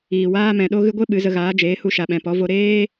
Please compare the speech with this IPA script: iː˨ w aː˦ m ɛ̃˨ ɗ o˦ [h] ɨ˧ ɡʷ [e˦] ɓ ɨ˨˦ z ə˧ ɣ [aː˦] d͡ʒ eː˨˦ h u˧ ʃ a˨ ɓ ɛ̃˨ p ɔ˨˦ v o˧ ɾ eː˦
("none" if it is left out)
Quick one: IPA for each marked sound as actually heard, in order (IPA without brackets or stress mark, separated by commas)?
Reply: ɣ, e˦, aː˨˦